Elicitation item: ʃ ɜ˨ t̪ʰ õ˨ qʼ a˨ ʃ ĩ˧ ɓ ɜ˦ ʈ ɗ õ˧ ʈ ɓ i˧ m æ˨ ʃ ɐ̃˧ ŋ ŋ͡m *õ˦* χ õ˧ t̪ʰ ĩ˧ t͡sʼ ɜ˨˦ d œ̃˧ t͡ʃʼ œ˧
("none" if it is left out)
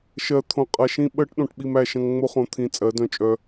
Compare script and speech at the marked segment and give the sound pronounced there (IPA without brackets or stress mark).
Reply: o˦